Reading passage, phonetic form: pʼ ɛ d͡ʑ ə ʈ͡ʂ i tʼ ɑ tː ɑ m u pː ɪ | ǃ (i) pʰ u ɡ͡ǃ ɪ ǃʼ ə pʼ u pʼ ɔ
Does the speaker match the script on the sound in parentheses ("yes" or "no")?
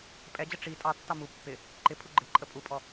no